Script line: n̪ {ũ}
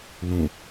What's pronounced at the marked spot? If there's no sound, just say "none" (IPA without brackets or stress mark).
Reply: ũ